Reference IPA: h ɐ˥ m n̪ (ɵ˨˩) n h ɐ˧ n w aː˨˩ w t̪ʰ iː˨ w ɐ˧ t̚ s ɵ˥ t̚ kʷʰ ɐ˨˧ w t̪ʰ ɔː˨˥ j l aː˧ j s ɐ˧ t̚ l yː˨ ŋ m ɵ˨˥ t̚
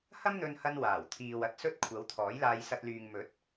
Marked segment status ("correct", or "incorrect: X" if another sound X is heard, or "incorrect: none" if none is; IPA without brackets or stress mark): incorrect: ɵ˧